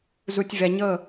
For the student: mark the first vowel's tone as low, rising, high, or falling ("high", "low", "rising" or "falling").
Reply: low